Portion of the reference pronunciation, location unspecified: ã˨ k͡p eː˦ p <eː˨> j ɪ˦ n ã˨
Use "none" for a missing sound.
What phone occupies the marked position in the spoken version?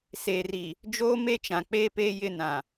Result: eː˦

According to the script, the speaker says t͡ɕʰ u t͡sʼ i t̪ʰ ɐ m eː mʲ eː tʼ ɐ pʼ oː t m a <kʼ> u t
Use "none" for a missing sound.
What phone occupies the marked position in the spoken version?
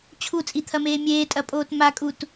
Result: kʼ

